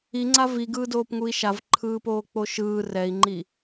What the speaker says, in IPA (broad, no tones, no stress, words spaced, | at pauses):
iŋ͡ǀa viɡɯːdoːpŋui̯ ʃavǃʰɯːpoːk͡po ʃɯː rɛi̯ŋ͡ǃi